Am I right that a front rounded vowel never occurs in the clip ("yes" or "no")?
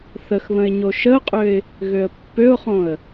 no